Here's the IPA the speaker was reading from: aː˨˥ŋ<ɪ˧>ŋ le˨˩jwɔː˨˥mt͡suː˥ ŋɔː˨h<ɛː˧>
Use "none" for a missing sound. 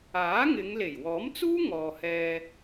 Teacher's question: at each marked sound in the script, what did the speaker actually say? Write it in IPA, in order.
ɪ˨˧, ɛː˧

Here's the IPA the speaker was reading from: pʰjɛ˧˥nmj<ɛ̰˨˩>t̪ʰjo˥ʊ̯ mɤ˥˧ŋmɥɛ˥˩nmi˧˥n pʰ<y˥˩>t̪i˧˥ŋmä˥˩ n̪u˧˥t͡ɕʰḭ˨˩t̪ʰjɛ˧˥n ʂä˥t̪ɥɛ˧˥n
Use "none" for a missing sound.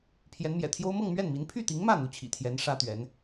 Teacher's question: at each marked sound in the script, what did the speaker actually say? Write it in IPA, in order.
ɛ̰˨˩, y˥˩

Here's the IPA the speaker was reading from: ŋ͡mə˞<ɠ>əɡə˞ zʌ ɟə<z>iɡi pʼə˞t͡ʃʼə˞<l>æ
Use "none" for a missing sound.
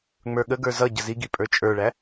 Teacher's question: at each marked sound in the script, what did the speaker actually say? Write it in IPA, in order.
ɠ, z, ɭ

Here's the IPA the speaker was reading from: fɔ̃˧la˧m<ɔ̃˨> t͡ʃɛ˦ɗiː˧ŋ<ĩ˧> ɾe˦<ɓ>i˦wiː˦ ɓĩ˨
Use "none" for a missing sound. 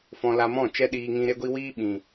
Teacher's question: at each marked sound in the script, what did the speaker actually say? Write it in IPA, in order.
ɔ̃˦˨, ĩ˧, ɡʷ

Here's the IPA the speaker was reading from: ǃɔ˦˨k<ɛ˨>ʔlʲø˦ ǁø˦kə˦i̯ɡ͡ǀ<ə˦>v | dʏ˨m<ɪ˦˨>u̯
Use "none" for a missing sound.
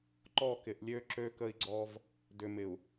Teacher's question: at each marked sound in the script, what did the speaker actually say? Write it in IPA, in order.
ɪ˨, ɔ˦, ɪ˨

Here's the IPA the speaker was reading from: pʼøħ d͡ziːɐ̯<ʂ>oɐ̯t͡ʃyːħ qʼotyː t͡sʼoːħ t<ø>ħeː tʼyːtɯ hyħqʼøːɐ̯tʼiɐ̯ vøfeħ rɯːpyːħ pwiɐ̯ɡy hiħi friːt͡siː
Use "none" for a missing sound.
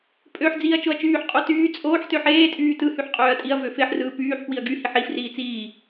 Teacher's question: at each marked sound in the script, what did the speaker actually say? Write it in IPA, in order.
t͡ʃ, ø

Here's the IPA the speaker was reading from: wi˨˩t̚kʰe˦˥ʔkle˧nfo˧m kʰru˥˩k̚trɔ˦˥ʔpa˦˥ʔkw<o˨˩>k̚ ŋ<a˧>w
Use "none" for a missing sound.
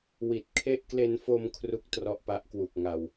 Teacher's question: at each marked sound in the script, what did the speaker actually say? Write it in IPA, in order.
u˨˩, a˧

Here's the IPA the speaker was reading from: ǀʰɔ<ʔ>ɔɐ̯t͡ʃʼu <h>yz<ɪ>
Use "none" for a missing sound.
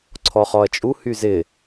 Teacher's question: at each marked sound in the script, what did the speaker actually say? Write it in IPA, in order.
χ, h, ɪ

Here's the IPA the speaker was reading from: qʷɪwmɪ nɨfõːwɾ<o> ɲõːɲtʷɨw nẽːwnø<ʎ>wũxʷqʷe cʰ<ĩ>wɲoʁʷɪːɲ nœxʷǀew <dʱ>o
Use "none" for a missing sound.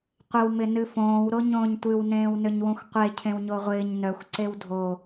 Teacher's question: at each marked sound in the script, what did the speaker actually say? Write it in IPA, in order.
o, ɲ, ẽ, dʱ

